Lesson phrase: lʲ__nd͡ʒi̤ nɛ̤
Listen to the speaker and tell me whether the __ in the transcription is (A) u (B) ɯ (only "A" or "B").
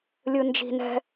B